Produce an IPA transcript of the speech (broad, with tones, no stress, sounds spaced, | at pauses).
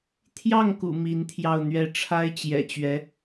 t̪ʰ j ɑ˥˩ ŋ k ṵ˨˩ m i˧˥ n t̪ʰ j ɑ˥˧ ʊ̯ n̪ ɥ ɛ˥˩ ʈ͡ʂʰ a˥ ɪ̯ t͡ɕ j ɛ̰˨˩ t͡ɕ ɥ ɛ˧˥